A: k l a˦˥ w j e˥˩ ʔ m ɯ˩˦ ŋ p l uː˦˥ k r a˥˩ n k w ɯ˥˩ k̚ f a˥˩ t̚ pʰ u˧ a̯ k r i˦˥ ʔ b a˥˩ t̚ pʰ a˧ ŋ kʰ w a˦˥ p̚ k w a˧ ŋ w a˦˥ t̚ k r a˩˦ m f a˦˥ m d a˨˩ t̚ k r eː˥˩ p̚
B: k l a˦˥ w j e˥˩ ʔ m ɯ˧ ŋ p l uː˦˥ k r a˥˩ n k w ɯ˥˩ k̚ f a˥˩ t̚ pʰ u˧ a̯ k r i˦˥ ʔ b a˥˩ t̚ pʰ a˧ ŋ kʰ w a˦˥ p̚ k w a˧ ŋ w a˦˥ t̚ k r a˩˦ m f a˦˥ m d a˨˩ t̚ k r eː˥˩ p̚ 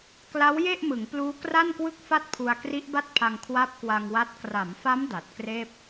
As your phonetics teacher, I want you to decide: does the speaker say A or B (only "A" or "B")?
A